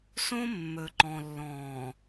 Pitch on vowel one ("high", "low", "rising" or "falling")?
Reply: high